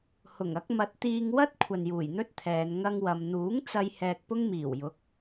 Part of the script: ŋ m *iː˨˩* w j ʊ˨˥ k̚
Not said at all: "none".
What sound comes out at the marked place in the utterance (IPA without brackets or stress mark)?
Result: iː˨˩